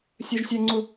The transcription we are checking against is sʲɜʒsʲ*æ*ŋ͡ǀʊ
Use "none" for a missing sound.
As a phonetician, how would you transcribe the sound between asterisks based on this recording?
æ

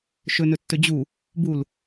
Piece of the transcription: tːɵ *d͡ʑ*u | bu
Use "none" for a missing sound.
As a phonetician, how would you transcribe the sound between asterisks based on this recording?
d͡ʑ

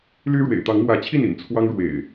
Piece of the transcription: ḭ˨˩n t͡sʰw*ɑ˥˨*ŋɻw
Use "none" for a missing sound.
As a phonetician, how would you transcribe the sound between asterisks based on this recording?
ɑ˦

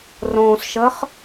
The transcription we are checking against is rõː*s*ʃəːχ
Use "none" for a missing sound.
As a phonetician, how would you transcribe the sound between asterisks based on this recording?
s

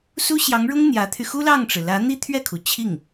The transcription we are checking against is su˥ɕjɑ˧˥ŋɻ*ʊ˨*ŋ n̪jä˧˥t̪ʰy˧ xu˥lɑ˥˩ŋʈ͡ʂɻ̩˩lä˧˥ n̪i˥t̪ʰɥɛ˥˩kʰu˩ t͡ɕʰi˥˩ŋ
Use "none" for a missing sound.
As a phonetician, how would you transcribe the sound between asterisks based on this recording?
ʊ˥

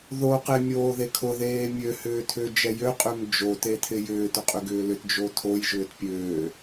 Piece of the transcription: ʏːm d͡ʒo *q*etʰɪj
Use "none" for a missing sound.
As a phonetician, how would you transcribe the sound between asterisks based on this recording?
t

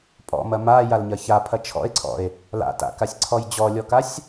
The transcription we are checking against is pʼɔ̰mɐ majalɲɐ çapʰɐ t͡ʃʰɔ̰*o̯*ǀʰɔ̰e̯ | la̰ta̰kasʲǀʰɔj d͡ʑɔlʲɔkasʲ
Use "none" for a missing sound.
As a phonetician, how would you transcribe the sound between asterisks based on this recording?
e̯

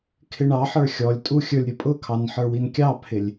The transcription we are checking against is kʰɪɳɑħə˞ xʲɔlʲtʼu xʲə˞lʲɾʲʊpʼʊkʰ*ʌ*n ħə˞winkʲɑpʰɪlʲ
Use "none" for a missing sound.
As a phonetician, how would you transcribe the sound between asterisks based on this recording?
ɑ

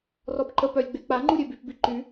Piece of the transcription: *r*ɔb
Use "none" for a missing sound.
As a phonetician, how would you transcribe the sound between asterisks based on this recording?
r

